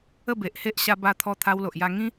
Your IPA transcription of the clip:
ə˥˧be˨ʔhe˦ʔ ɕa˧ba˧t̪ʰɔ˧ t̪ʰa˧wlo˨ʔja˧ŋĩ˦

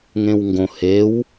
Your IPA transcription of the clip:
ŋẽwŋɡõ hew

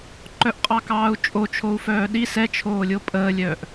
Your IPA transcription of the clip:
ǃœʔqʼɑkɑːu̯t͡ʃʼo t͡ʃʰou̯fœːɗi sɛ t͡ʃʰoːlʲopʼəːlʲœːʔ

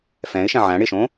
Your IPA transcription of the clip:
fɛ̃ɪ̯ʃɛ̃ ʕæ̃ ɽɪʃõ

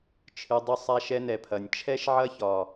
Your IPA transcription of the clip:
t͡ʃʰɨ˨dˤʏ˧ sˤa˧ʃɛ˧nɛ˨pʰɐ˨nʲ t͡ʃʰɛ˦ʃʕɐ˦çɒ˨

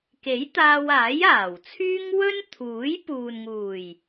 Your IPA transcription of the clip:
ke˨˥jt̪aː˧w aː˨˥jaː˨˩wt͡sʰyː˥ŋ wɵ˥nt̪ʰuː˨˥jpuː˨n ŋuː˨˩j

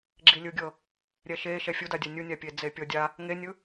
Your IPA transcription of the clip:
ɡ͡ǁilʲɯɡʲɤ | ɾʲɛʃe ʃɛfʲudadʲɛ nʲunʲapʲe d͡zepʲɔdʲa | ŋenʲɯ

